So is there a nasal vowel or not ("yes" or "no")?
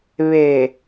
no